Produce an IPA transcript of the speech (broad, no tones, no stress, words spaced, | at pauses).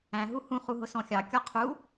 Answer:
æ̃ ɦuhũ χuɦʊsɔ̃xʲɑ kʲɔqʰu